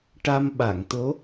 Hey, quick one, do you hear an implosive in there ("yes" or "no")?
yes